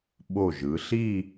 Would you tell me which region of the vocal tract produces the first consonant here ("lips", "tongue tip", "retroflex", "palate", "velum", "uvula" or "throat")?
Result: lips